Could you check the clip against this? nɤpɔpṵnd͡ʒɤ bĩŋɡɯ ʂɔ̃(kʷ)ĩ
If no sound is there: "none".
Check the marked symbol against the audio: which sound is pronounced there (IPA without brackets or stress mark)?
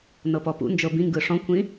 kʷ